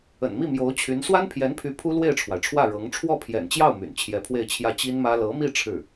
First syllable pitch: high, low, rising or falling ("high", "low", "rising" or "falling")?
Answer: low